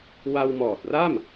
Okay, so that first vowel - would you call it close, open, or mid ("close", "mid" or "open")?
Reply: open